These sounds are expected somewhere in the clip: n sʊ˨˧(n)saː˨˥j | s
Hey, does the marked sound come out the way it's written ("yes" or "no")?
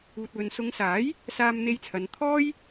no